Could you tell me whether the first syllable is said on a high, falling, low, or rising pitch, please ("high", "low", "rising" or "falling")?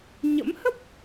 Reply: rising